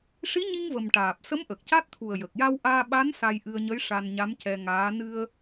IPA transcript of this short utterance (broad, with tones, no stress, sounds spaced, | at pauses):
ʂ i˧˥ ɲ i˧ ŋ v ə˨˩ m ʈ aː˨˩ p̚ s ə˧˥ m ʔ ə˨˩ k̚ c a˦˥ t̚ t̪ʰ u˨˩ ə̯ j ə˨˩ k̚ j a˧ w ʔ aː˧ ɓ a˧˥ n s a˧ j ʔ ɨ˧ ə̯ ɲ ə˧˥ j ʂ a˧ n ɲ a˧˥ m c ɛ˧ ŋ aː˧˥ n ɨ˧ ə̯